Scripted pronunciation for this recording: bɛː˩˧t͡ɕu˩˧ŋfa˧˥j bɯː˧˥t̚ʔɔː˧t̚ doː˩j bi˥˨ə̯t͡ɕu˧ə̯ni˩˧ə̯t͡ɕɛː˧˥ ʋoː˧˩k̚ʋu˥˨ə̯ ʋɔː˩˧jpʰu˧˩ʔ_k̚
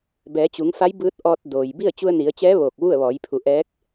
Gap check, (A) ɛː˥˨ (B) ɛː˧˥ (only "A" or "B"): B